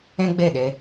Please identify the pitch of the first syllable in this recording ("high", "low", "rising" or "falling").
high